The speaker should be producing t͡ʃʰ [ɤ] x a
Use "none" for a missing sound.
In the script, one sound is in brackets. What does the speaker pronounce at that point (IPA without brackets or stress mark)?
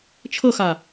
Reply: ɤ